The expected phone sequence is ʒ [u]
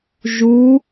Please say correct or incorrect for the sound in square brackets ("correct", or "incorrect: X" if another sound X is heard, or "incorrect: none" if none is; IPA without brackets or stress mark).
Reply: correct